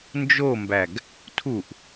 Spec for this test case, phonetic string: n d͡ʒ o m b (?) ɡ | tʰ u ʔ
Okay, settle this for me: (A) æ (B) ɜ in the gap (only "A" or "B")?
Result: A